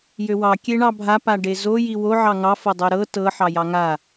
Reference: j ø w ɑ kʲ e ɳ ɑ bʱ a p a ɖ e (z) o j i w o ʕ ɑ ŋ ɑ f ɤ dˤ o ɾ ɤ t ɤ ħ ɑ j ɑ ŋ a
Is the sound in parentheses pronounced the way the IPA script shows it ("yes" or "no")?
yes